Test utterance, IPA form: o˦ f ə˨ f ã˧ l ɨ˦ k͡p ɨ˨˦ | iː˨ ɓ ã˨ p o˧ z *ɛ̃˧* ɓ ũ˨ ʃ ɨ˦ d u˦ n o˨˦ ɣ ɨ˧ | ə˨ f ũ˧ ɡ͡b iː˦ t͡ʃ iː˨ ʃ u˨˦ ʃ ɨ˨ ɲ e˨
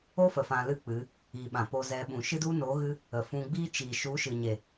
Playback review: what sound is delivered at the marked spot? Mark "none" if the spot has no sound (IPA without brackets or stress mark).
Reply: ɛ˧